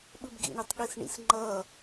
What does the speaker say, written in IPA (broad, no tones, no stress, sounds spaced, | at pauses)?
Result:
ɓ ɯ b ɡ ḭ ɳ i tˤ ɠ i s ɳ ḭ s ŋ͡ǃ ʌː